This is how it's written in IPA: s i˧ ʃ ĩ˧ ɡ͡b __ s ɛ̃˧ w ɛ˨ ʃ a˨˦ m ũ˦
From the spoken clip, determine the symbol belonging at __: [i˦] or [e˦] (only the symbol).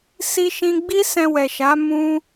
i˦